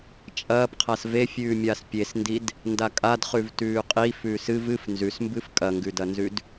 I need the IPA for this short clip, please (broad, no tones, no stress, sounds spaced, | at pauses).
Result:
t͡ʃʼ ɐː p qʰ a s v e fʲ ʉː mʲ aː s pʲ e s n d i d | n d a kʼ a d χ ʉ v t ʉː qʼ i f ʉː s ɨ v ɨ f n z ʉ s m b ɨ f kʼ ɐ ŋ ɡ ʉ d ɐ n z ʉ d